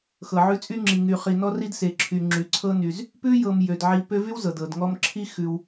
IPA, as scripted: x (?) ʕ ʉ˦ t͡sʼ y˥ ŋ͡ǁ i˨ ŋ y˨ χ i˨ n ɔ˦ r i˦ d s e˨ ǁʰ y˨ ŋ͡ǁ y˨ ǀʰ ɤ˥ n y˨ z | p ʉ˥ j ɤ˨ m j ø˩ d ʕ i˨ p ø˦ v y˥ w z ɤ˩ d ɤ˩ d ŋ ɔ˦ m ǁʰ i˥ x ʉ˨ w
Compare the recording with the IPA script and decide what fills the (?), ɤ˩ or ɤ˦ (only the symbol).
ɤ˩